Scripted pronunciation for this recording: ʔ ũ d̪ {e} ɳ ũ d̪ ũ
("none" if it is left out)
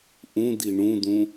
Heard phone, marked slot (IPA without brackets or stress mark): i